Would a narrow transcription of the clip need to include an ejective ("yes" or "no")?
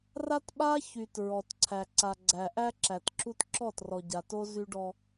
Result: no